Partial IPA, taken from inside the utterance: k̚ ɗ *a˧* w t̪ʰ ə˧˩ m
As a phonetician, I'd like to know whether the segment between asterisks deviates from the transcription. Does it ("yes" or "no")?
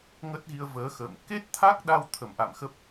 no